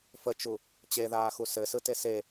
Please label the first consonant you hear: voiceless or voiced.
voiceless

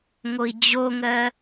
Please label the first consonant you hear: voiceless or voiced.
voiced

